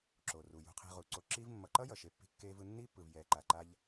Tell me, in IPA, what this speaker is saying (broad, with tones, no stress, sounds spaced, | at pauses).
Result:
ǁ o˩ r u˩ j ṳ˨ qʰ i̤˨ ʁ u˩ ǀ o˨ ǁ i˦ v mː ʌ˨ ǃ ʌ˥ j ʌ˩ ʃ e˦ pː i̤˥ kː eː˦ v ɯ˦ nː i˥ pː ɯ˨ v j ɛː˨ ǃ a˨ ǃ a˦ ʎ